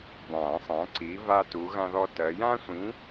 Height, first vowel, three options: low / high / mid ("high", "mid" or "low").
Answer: low